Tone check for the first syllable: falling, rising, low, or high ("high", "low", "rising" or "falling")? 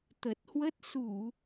low